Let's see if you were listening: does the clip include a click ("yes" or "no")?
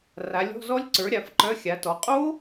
yes